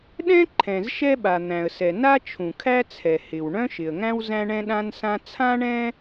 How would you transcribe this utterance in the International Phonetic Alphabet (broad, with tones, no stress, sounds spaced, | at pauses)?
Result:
ɗ ɛ̃˥ ǃʰ ɛ̃˩ z ʃ ɛ˥ ɓ a˩ n̪ æ̃˩ ə̯ s ɛ˩ n a˥ t͡ʃʰ ũ˩ kʰ æ˥ t͡sʰ ɛ˩ h ɪ˩ w ɳ œ̃˥ ʃ ɪ˩ ə̯ ŋ æ̃˥ w z æ̃˥ ɳ ɛ̃˥ ɗ ã˥ n s ã˥ t͡sʰ ã˥ ɳ ɛ̃˥